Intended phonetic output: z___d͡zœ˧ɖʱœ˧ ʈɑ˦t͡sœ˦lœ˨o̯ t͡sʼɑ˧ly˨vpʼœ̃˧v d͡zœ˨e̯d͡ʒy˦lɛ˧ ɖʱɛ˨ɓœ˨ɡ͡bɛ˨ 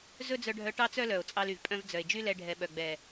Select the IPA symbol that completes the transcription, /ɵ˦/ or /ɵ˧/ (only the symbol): ɵ˦